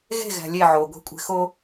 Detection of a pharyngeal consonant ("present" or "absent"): present